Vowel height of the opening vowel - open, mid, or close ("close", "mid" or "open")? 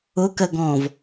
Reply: close